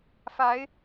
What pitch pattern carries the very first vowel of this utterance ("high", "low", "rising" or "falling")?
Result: rising